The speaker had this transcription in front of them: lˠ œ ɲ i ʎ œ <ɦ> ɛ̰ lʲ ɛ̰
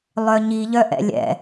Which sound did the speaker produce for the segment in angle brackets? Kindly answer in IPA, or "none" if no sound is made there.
ʔ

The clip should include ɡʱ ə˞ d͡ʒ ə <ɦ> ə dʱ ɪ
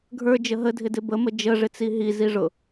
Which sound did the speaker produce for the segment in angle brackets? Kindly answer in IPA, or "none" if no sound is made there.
ɦ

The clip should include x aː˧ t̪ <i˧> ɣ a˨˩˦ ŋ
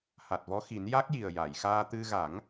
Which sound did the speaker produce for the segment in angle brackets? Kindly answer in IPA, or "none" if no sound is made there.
ɨ˧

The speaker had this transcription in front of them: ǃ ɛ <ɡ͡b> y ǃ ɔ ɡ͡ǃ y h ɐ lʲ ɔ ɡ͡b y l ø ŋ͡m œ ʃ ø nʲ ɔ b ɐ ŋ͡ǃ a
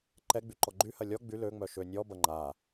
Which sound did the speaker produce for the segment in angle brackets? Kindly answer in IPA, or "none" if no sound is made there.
ɡ͡b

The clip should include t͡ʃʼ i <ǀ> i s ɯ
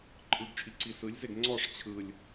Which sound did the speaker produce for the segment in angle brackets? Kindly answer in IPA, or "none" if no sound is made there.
ǀ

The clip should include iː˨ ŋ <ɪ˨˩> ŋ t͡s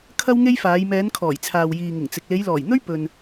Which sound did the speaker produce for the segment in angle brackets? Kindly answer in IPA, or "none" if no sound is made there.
ɪ˨˩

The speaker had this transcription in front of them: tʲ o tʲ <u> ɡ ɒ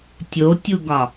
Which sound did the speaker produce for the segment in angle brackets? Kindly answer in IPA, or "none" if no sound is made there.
u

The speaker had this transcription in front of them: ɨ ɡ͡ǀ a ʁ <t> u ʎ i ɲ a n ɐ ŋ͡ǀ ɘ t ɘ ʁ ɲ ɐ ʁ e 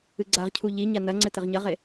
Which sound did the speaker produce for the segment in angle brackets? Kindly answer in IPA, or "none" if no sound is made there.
cʰ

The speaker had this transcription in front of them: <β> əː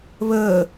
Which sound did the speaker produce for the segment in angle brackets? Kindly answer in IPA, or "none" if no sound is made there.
β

